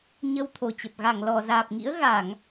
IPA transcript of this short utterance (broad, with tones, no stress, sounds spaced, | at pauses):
ɲ ə˧ w t̪ʰ o˨˩ t͡ɕ ə˨˩ p̚ ɣ a˧˩ ŋ l ɔ˧˩ z aː˨˩ p̚ ŋ ḭ˧˥ ə̯ ɣ a˧˩˨ ŋ